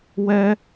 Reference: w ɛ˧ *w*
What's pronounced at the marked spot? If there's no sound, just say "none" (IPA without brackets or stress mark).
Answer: none